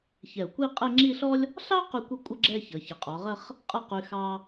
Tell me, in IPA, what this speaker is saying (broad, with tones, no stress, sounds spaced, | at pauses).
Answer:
ç ɛ˧˩ ʊ̯ kʷ i˥˧ qʼ e˥˧ ŋ͡ǁ i˥˧ ɬ ɔ˥ lʲ | ɬ ɑ˥ q y˥˧ kʷ ʌ˥ kʷʼ ʌ˥ ɡ͡ǁ ɛ˥˧ ç ʌ˩˧ ç ə˩˧ qʼ ɔ˩˧ ʁ ə˥˧ χ | qʼ ʌ˥˧ q y˧ x ɑ˥